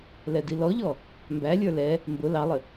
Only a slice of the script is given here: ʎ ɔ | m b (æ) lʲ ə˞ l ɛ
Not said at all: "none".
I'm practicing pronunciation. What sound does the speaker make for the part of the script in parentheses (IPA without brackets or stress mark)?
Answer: æ